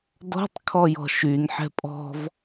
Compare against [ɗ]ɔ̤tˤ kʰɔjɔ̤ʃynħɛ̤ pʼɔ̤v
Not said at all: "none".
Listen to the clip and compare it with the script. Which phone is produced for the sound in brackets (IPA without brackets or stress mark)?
d